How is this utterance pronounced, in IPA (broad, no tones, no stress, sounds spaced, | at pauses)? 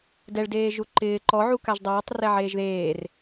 d ɛ ɭ d eː ʒ u ǃ ɪː ǃ ɔ ʕ u k a ʒ dˤ ɛː tˤ r ɛ ʕ eː ʒ ð eː r